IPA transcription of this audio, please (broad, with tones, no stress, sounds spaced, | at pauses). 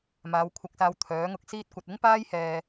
m aː˨˧ w kʷʰ ɐ˧ k̚ s aː˧ w t̪ʰ œː˨˥ ŋ ʊ˧ k̚ s iː˥ t̚ kʷ ɐ˧ t̚ ɪ˥ ŋ p aː˥ j h ɛː˧